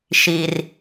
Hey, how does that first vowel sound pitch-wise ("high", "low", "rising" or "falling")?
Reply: low